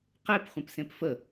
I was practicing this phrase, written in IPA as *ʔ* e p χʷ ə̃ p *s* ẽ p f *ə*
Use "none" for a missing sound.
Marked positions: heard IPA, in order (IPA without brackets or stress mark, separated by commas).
q, s, ə